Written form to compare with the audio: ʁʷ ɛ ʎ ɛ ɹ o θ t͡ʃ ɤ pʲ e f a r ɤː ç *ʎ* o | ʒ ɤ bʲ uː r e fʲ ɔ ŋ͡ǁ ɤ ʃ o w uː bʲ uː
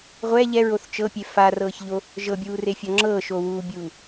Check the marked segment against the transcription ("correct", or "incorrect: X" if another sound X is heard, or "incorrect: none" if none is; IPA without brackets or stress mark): correct